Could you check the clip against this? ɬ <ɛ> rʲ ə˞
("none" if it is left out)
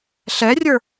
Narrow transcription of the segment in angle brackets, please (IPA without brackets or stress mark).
ɛ